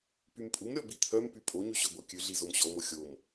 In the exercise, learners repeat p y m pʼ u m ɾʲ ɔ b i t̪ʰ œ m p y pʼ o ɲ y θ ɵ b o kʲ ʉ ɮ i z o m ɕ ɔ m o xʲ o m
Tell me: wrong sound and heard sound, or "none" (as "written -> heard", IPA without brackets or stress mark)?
θ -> ɕ